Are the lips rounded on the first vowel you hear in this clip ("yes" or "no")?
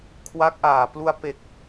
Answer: no